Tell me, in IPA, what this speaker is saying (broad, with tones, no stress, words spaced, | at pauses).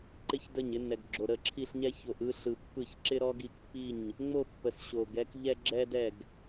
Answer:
ǃɪ˥çdə˥˩ɲɪ˥nːɛ˨ɡ ɡ͡ǁo˨ɾə˥˩ǁʰi˥˧ɬɲɛ˥ ço˨ʔɯ˥˧ɬɯ˨ pːɯ˥˩ç ǁɪ˥ɾɔ˥ɡi˥˩kpːi˥˩ɲ | ŋ͡mo˥˧ pːə˨sɕo˨ɡɛ˥k ʎɛ˥ɡ͡ǁɛ˥dɛ˥˩ɡ